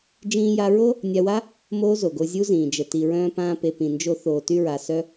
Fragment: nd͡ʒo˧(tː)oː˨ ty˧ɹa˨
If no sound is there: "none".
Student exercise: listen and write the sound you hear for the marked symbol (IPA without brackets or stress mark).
θ